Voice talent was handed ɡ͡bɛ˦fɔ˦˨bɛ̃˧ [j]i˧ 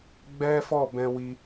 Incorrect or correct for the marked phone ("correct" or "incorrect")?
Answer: incorrect